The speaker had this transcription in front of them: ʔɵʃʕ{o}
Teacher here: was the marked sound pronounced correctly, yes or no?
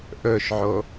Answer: yes